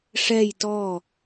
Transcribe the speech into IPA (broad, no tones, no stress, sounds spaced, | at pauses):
ʂ ɛ j t ɔ